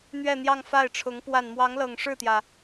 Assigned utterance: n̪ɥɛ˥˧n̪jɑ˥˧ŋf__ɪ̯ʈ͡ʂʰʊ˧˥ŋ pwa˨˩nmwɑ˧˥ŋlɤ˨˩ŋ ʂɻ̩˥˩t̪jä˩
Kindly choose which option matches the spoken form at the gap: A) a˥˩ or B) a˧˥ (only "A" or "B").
A